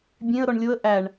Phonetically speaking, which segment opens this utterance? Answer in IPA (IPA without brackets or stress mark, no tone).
bʲ